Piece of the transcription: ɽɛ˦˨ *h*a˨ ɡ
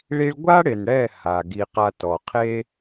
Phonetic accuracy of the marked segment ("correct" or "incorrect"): correct